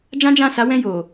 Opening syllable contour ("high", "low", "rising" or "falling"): high